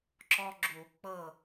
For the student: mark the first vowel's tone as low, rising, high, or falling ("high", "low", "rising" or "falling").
high